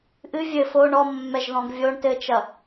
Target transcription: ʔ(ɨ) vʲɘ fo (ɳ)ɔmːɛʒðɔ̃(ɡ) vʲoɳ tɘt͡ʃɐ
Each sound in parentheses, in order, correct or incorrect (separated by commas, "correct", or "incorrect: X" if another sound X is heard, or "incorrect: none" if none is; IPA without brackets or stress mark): correct, correct, correct